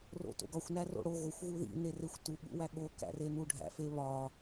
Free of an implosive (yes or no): no